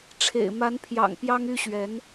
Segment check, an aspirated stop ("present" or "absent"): present